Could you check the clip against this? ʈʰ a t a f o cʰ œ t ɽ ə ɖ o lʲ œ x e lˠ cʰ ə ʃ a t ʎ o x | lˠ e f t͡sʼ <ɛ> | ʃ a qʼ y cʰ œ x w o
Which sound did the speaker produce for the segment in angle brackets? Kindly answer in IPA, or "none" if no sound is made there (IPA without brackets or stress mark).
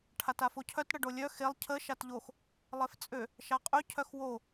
ø